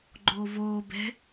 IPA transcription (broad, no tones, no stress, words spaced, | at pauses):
ɡ͡ǃoːvoːbɛ̤